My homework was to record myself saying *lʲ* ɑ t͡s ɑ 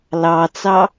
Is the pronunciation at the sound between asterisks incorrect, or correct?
incorrect